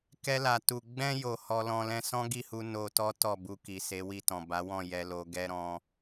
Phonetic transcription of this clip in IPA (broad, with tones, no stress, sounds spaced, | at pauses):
k ɛ˧ l a˨ t u˨ ɡ͡b ɛ̃˧ j o˨ h ɔ˧ l ɔ̃˧ l ɛ̃˦ s ɔ̃˦ ɡ i˦˨ h u˧ n o˧ t ɔ˦ t ɔ˦˨ b u˧ k i˨ s e˨˦ w i˦˨ t ɔ̃˨ b a˨˦ w ɔ̃˦˨ j ɛ˧ l o˧ ɡ ɛ˦ ɾ ɔ̃˦